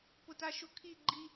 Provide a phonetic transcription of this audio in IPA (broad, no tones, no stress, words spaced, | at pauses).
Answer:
pʊtaʃʊkʰi ɡ͡ǃi